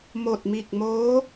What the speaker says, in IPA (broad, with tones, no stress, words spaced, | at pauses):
mo˧˩t̚mi˧˩k̚moː˧˥